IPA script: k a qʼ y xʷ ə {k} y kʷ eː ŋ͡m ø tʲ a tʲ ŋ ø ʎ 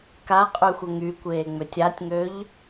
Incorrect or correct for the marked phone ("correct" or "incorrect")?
incorrect